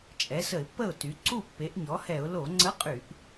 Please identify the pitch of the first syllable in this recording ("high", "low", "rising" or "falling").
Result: rising